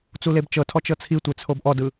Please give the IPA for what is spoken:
t͡s u l e b t͡ʃ ɤ tʰ ɔ t͡ʃ ɤ t͡sʰ i tʷ e t͡sʰ o b ʔ ɔ d ɯ

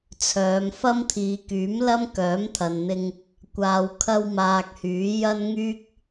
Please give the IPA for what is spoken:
t͡sʰ œː˨˧ m f ɐ˥ m t̪ʰ iː˨˧ k yː˨˥ m l ɐ˥ m k œː˨˥ m t̪ʰ ɐ˨ n n̪ ɪ˧ ŋ | kʷ aː˧ w kʰ ɐ˥ w m aː˧ k̚ h yː˨˥ j ɐ˥ n ŋ yː˥ k̚

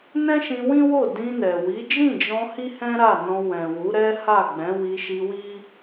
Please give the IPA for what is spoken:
n ɛ̃˦ ʃ ĩ˧ w ĩ˦ w o˦˨ d ĩ˧ n ɛ˨ w i˨˦ d͡ʒ ĩ˦˨ d͡ʒ ɔ̃˧ h i˦ h ɛ̃˦ ɾ a˦˨ n ɔ̃˧ w ɛ̃˨ w u˨˦ ɾ ɛ˦ h a˦˨ ɡ͡b ɛ̃˨˦ w i˧ ʃ i˧ w i˦

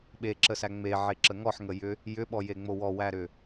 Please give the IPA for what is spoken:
ɓ e ǁ ə s æ ŋ͡m e ʕ e ǁ ə ŋ ɔ ħ ŋ ə j ʏ | j ʏ ɓ ɔ j e ŋ͡m o w ɔ w æ ɾ ʏ

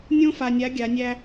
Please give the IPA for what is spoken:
nʲ õ˥ f a˧ nʲ a˧˥ ɡʲ a˧˥ nʲ æ˥

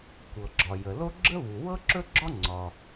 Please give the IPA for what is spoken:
kʷ ɤ˩ ɡ͡ǁ ɒ˩ j ə˩ l o˥ ɡ͡ǁ ə˥ β u˩ w ɤ˥ ǁ ɵ˥ ɡ͡ǁ ɒ˥ ŋ͡ǀ ɒ˩

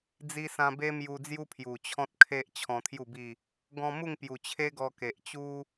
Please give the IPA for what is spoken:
d͡z i˧ s ã˧ b e˦ m j u˧ d͡z j u˦ pʰ j u˨˩ t͡ɕʰ ɔ̃˦ t̚ kʰ e˦ ʔ t͡ɕʰ ɔ̃˧ t̪ʰ j u˥˧ b i˥˧ | ɡ ɔ̃˧ m u˥˧ ŋ p j u˨˩ t͡ɕʰ e˦ ɡ ɔ˧ k e˨ ʔ t͡ɕ u˦

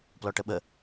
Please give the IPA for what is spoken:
p l ɔ ʈ ə ɓ ə

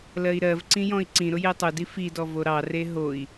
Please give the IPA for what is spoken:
l ɜ i̯ ɾ ɜ v ǀ ĩ j ɔ̃ i̯ ǀ ĩ ɾ ʊ j e tˤ ʊ d i f i d ɔ v o ɾ ɑ r e ɦ o i̯

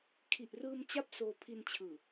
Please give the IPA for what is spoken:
kʰ i˨˩ ʔ r ɯː˧ m t͡ɕ a˥˩ p̚ s oː˧ pʰ i˧ n t͡ɕʰ ɯː˨˩

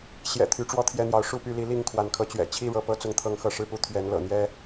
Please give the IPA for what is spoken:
ɕ j ɛ̰˨˩ t̪ʰ y˨˦ ʈ͡ʂ w ɔ˥˨ t̪ʰ j ɛ˥˨ n̪ j ɑ˨˦ ʊ̯ ʂ u˥˨ p y˥˨ l i˨˦ l i˥˨ ŋ kʰ w a˨˦ n kʰ ɤ˨˦ t͡ɕ ɥ ɛ̰˨˩ t͡ɕʰ i˥˨ ɻ ɤ˨˦ p ɤ˦ t͡s ʊ˦ ŋ t̪ʰ ɤ˥˨ ŋ x ɤ˥˨ ʂ ɻ̩˥˨ p u˥˨ t̪ʰ ɥ ɛ˨˦ n l ɤ̰˨˩ n̪ j ɛ˦

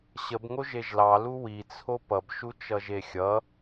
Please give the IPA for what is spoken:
ɕ ə b ŋ o ʒ e ʒ l ɑ l u w i t͡sʰ o p ʌ b ʃ u t͡ʃ ʌ ʒ e xʲ ʌ

